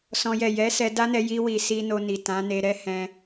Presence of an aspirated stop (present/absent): absent